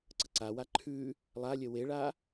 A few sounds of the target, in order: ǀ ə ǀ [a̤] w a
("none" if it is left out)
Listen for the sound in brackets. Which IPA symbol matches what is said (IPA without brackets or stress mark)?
a